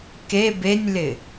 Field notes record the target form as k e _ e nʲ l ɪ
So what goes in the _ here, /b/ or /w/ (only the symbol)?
b